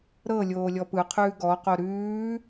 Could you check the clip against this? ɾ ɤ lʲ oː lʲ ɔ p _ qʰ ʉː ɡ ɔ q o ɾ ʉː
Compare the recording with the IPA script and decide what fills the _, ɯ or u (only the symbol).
ɯ